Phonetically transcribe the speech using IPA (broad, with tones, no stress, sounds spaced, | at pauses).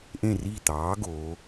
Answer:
ʔ ẽ˧˩ r i˧˩ t̪ ɑː˩˧ ɡ oː˩˧